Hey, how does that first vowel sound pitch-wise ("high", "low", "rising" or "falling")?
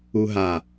high